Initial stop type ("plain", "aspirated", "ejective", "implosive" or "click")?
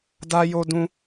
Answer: plain